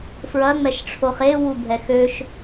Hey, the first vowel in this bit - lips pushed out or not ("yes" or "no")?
no